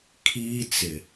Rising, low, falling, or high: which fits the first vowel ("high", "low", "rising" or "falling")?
high